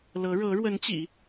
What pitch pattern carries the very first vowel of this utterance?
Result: rising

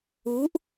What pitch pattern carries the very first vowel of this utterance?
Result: rising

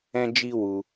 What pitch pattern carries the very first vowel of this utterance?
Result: high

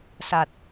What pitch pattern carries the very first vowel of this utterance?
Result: low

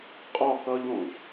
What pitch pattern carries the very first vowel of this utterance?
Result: falling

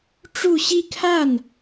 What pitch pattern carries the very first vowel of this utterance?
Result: falling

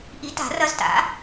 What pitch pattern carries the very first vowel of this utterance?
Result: rising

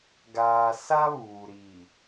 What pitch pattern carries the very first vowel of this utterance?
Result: low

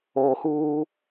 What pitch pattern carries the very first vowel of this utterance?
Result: low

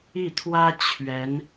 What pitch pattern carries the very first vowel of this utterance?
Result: falling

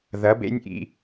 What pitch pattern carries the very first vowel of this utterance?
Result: rising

